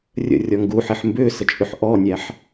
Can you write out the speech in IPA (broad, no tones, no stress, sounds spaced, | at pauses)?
rʲ ə̰ rʲ ɔ ŋ ɡ u ħ e ħ m b ʏː s ə t͡ʃʼ ʉ ħ ʔ ɔ nʲ æ ħ